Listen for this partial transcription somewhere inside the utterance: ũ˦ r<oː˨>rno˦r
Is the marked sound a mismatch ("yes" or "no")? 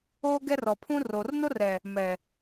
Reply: no